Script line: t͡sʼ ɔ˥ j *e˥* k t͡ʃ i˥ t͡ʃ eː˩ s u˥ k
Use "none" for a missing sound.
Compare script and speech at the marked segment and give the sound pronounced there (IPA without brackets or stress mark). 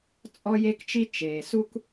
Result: e˥